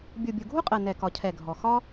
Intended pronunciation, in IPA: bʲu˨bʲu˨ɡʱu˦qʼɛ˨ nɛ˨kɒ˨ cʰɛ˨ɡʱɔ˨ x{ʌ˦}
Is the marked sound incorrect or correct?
incorrect